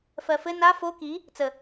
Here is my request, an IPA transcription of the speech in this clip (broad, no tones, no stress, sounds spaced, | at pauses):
f ɜ f ɘ n a f o k i | t͡s ə